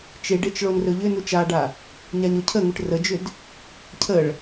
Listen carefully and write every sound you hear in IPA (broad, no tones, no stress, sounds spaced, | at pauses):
t͡ʃ e ɖ e t͡ʃ ɭ o n r ɵ ʎ ʏ n u t͡ʃ a ɖ a | ɲ a ɲ o cʰ ə ŋ u ʈ r ə d͡ʒ ʏ d | cʰ ə ɭ